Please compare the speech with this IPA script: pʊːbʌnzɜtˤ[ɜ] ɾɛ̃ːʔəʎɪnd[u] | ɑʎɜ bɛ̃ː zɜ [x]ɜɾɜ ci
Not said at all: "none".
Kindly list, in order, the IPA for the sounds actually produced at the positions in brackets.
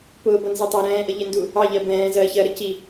æ, u, ç

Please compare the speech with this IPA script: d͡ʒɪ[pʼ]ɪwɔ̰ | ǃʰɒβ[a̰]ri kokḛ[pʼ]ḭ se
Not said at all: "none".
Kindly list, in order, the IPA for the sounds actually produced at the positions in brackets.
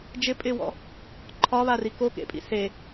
pʼ, a, pʼ

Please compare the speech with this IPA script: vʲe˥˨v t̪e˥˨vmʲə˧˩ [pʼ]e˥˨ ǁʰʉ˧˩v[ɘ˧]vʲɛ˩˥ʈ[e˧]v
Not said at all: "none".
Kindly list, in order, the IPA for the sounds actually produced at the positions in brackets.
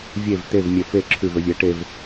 f, ɘ˧, e˧

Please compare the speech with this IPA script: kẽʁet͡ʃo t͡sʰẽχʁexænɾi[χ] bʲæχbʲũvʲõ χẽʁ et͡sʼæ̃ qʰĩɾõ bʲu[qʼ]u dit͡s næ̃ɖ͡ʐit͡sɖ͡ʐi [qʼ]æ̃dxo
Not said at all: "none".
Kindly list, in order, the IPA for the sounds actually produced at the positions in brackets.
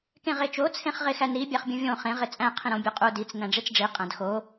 none, qʼ, qʼ

